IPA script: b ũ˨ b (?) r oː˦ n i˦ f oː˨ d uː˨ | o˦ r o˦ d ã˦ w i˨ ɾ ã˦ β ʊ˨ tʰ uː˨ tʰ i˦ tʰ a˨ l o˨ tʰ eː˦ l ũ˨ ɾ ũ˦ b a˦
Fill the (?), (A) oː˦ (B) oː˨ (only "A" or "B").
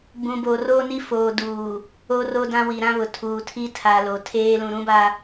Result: B